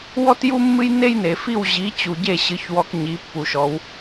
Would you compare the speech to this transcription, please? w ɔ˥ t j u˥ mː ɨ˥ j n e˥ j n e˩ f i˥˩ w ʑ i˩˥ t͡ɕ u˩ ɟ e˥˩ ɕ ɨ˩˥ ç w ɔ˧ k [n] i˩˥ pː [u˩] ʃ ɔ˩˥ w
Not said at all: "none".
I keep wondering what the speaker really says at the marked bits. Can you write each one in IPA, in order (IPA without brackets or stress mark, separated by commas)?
ɲ, u˩